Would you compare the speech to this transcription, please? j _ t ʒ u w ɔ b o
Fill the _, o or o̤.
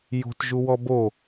o̤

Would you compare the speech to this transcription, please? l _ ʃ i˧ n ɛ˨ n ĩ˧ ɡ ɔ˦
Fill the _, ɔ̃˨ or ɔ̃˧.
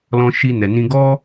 ɔ̃˧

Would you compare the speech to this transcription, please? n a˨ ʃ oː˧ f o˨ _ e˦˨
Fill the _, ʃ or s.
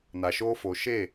ʃ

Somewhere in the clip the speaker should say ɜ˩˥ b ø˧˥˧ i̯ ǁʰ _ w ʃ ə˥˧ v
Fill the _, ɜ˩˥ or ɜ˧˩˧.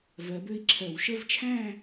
ɜ˧˩˧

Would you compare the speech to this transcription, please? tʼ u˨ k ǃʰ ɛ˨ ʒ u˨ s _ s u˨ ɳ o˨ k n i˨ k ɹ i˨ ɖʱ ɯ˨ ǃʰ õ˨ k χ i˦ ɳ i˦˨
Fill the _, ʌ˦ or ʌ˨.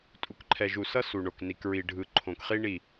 ʌ˦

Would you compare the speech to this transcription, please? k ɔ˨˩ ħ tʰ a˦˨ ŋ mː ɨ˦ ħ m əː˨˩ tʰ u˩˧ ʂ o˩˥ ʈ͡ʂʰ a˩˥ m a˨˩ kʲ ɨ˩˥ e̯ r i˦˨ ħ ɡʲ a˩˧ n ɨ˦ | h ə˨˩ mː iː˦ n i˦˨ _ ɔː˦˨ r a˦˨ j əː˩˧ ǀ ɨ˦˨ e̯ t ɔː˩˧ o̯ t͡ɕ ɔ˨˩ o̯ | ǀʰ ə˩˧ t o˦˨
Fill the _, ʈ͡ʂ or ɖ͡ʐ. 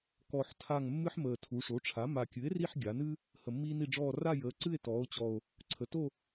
ɖ͡ʐ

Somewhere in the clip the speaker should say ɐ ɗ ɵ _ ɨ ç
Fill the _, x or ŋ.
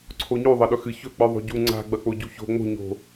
x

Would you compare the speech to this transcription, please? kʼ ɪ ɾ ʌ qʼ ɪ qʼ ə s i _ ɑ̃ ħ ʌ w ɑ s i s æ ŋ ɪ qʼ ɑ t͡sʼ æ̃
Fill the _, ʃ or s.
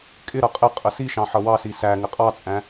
ʃ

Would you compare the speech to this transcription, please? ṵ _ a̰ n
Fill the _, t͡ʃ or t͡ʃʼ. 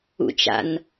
t͡ʃ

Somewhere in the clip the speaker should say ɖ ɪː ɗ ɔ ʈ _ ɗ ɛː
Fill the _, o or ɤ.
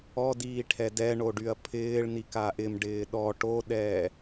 o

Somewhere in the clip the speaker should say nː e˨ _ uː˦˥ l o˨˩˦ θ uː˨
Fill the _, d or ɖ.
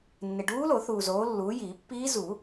ɖ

